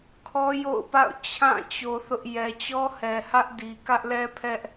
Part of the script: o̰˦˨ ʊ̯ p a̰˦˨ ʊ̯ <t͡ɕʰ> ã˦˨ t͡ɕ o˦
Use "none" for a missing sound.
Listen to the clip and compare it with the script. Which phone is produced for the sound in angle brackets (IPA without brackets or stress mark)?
t͡ɕʰ